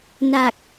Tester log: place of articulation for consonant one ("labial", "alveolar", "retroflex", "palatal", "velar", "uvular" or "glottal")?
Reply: alveolar